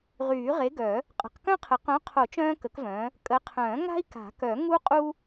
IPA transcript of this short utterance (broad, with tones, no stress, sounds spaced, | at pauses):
ʁ yː˨˩˦ ʁ e˨˥ ɡ œ˨˩˦ | qʼ ə̤˨˩˦ q k œ̃˥ qʰ ə˨˩˦ q œ̃˨˥ qʰ o˨˩˦ t͡ʃ œ̃ː˥ k ə˨˥ k v œ̃ː˨˥ | kʼ ə˨˥ qʰ œ̃ː˨˩˦ ŋ a̤˥ i̯ k a̤˨˩˦ k œ˨˩˦ ŋ u˥ qʼ u˥